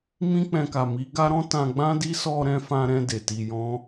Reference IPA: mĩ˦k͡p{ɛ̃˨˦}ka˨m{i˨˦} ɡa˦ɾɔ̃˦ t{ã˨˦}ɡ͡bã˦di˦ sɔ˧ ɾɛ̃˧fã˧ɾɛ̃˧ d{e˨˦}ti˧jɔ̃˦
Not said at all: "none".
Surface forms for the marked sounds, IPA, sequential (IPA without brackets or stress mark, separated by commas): ɛ̃˧, i˨˦, ã˧, e˨